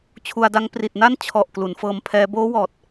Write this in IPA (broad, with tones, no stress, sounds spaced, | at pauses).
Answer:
t͡ɕʰ u˧ a̯ d a˦˥ ŋ p r i˨˩ t̚ n a˥˩ n t͡ɕʰ ɔ˨˩ ʔ k l u˩˦ n f ɤː˧ m pʰ ɛː˦˥ b oː˦˥ w ɔː˨˩ t̚